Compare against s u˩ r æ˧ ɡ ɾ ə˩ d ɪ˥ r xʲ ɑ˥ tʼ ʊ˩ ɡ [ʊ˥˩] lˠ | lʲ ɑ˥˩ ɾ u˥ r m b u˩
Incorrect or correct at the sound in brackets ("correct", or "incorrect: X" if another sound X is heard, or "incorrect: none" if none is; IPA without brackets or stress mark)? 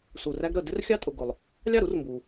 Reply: incorrect: ʊ˩